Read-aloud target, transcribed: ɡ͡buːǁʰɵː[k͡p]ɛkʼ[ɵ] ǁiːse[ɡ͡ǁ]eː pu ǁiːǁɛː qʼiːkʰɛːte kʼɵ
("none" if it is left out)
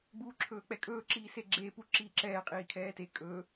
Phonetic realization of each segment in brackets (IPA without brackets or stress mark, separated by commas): k͡p, ɵː, ɡ͡ǁ